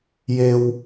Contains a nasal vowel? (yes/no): no